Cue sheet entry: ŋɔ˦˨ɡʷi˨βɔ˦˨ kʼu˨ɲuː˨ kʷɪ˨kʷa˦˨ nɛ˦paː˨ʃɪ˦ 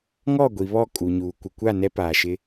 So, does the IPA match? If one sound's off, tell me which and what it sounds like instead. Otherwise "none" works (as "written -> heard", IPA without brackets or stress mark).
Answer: none